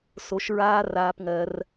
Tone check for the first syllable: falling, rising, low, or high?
low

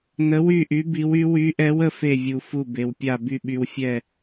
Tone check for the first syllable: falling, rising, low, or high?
rising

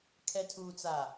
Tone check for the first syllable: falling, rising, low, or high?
low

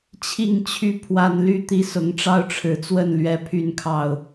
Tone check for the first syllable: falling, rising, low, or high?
falling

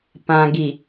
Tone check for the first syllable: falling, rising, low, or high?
low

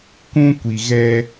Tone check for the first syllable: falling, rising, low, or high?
high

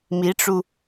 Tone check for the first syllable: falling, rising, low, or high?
rising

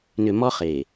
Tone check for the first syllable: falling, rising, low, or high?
low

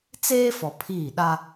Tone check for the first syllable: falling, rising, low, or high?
high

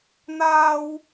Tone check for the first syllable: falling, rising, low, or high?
high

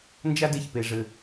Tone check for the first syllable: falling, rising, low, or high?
high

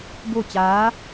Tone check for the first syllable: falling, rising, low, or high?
falling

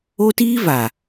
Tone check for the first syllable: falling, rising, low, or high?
high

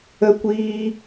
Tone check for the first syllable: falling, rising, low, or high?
high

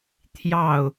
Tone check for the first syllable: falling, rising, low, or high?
falling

